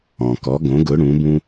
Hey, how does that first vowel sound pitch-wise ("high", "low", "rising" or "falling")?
low